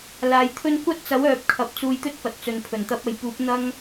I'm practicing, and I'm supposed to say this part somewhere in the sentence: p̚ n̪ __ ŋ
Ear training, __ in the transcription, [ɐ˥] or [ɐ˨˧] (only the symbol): ɐ˥